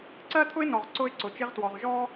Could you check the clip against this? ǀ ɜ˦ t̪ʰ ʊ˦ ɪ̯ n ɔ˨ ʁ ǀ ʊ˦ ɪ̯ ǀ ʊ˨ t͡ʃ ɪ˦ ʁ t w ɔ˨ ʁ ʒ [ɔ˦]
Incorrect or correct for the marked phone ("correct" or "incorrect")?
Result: correct